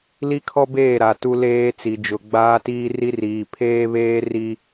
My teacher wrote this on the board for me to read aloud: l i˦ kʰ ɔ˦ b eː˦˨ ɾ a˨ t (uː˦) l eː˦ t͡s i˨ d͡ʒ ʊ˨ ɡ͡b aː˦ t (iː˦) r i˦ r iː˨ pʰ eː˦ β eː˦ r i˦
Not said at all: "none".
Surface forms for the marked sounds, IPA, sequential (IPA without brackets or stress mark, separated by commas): u˦, iː˦